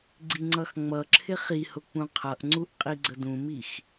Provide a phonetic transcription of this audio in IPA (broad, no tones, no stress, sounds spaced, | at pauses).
ɡ͡ǀ i ŋ͡ǀ ʌ x ŋ͡m ʌ ǁʰ ɪ χ i h ʊ k͡p ũ qʰ ʌ ʔ ŋ͡ǀ u ʔ qʼ i ɡ͡ǀ ə d ũ m i x